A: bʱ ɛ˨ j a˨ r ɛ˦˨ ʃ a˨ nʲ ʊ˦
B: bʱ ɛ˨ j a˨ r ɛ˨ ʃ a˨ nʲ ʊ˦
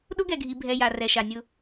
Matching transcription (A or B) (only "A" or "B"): B